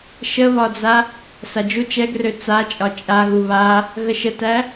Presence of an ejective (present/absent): present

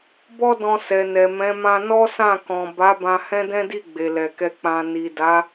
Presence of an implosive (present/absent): absent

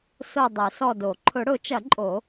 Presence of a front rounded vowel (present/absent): present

